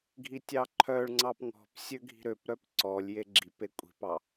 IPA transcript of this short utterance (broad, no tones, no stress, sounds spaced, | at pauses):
ɡʱ i tʲ ɑ ǃʰ œ ɭ ŋ͡ǀ ɑ p ŋ ɔ̤ p sʲ ø ɡʱ i̤ ɾ ø p ɾ œ p ǀ ɔ lʲ j e ɡ͡ǁ i p e kʷʼ i̤ p ɑ